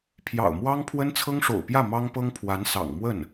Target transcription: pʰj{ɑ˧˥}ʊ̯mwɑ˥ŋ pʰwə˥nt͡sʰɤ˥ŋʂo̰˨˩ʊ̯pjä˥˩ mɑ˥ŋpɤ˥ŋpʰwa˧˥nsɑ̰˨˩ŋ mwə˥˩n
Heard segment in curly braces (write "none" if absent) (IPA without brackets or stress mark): ɑ̰˨˩